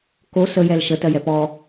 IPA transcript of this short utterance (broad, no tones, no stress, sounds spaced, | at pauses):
k o s ə j ɛ l ʃ ə t ɜ j ɛ p ɔ